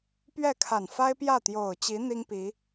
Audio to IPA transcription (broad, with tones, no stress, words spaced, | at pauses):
pɥɛ˥˩kʰa˨˩nfa˥ɪ̯ pjä˥˩t̪jo˨˩ʊ̯t͡ɕi˧˥ n̪i˥ŋpi˧˥